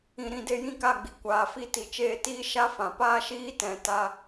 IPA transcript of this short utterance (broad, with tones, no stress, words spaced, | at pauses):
ĩ˨ɾĩ˨ de˧jĩ˦˨ka˦˨ɡ͡bi˨ kʷaː˨fi˧ ti˨t͡ʃeː˦˨tiː˦ ʃa˦fã˨paː˦ʃiː˦ tɛ̃˨ta˧